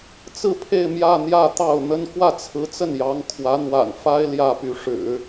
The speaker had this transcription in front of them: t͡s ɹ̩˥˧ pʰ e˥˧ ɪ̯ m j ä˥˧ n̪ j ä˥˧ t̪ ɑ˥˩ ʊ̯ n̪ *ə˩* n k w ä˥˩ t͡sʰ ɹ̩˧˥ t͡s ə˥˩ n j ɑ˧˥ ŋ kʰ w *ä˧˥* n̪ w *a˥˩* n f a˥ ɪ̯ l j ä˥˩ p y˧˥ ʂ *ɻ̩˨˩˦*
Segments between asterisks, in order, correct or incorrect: incorrect: ə˥, correct, incorrect: a̰˨˩, correct

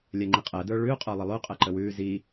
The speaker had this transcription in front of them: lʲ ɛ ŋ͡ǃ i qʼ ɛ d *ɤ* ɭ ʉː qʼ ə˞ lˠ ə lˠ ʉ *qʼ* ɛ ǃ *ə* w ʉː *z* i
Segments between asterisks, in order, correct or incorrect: incorrect: ə˞, correct, correct, correct

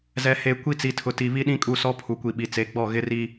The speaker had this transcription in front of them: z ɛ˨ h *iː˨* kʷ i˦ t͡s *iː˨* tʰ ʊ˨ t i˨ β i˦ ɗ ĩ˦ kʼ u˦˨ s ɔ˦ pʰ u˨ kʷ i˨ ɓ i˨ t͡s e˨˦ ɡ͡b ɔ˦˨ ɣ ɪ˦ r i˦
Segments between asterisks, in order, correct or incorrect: incorrect: eː˨, incorrect: i˨

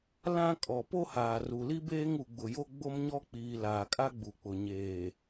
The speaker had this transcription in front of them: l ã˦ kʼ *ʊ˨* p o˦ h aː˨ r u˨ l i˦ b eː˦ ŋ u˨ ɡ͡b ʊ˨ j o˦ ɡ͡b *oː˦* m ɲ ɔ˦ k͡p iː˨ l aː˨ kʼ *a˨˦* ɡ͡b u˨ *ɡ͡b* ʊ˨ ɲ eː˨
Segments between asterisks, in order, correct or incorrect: incorrect: ɔ˨, incorrect: o˦, incorrect: a˦, incorrect: k͡p

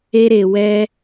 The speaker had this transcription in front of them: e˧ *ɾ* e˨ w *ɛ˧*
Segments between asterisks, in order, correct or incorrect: correct, correct

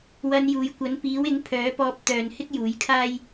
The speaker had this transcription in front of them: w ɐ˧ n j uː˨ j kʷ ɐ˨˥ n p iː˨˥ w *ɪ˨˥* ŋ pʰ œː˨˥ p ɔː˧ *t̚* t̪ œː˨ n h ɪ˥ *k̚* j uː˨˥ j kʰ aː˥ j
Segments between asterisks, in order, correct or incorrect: correct, incorrect: p̚, correct

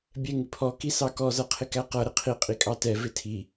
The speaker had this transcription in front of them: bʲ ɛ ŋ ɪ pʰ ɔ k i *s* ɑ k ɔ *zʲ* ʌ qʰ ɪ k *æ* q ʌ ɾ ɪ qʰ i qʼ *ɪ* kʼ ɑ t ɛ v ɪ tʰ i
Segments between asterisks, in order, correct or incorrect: correct, incorrect: z, correct, incorrect: i

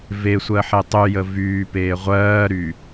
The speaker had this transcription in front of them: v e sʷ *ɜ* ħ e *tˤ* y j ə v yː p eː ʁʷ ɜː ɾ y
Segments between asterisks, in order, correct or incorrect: correct, correct

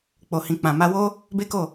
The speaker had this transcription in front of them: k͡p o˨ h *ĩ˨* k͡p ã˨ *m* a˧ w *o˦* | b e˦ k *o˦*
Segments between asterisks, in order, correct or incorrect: correct, correct, correct, incorrect: o˦˨

